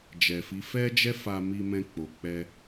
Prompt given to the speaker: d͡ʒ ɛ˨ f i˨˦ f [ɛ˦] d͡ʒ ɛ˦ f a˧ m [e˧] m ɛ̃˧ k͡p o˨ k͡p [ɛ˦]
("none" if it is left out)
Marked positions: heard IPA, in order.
ɛ˦, i˧, ɛ˧

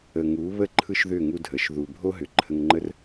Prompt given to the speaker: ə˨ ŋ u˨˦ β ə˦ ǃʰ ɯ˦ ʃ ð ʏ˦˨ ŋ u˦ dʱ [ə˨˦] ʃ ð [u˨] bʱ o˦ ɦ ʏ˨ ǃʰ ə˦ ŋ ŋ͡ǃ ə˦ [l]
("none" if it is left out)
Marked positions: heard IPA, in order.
ə˨˦, u˨, r

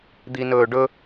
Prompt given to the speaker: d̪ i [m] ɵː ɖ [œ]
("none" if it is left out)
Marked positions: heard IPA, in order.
n, ɵ

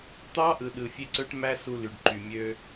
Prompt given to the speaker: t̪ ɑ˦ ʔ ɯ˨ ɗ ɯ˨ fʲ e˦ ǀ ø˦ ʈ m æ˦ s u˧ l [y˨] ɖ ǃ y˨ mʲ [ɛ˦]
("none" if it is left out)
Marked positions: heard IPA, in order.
y˨, ø˦

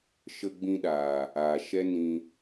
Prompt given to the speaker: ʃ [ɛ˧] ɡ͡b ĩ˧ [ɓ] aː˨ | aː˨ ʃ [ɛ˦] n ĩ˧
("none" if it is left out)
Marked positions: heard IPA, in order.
ə˧, ɗ, ɛ˦

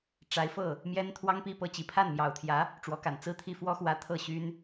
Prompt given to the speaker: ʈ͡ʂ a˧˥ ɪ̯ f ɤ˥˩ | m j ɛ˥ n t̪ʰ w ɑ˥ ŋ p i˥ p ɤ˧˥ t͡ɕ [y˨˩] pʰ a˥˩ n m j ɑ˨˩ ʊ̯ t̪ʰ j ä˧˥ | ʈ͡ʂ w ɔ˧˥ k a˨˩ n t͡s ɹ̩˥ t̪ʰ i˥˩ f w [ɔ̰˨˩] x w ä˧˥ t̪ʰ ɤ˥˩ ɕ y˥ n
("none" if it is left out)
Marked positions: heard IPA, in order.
i˨˩, ɔ˥

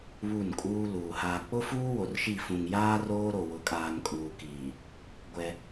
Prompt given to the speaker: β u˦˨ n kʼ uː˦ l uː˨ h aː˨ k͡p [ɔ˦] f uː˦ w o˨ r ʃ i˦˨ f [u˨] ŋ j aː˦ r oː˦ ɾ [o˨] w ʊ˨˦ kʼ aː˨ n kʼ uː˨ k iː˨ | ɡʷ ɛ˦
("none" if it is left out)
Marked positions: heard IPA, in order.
ʊ˦, ũ˨, o˨

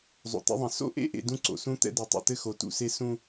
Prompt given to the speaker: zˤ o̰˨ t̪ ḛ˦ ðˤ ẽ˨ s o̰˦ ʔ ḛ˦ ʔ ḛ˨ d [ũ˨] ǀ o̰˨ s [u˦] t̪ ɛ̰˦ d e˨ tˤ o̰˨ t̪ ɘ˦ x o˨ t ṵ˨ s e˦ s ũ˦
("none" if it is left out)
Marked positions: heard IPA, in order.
ũ˦, ũ˦

